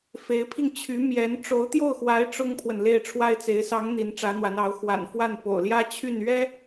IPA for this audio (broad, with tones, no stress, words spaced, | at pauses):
fe˧˥ɪ̯pʰi˧ŋt͡ɕʰy˧˥ mjɛ˧˥n ʈ͡ʂo˧˥ʊ̯t̪jo˥˩ʊ̯xwa˧˥ɪ̯ ʈ͡ʂʊ˥ŋpʰwə˨n le˥˩ɪ̯ʈ͡ʂʰwa˥ɪ̯t͡se˧˥ɪ̯ sɑ˧˥ŋ n̪i˧˥nʈ͡ʂä˧˥n̪wa˧˥nɑ˧˥ʊ̯ xwa̰˨˩nfwa˥˩n po̰˨˩ʊ̯ljä˥ t͡ɕʰy˥˩n ɥɛ˥